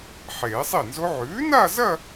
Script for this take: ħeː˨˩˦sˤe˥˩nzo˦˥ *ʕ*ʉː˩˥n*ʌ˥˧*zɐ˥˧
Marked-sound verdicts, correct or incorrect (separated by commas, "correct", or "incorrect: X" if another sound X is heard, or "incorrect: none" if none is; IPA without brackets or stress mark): correct, incorrect: a˥˧